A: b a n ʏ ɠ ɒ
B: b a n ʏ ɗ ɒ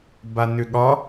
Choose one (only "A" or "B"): A